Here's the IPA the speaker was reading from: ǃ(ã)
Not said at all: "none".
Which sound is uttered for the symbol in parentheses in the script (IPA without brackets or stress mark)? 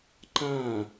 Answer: ã